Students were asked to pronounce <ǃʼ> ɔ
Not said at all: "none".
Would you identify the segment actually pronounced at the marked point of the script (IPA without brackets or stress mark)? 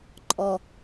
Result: ǃʼ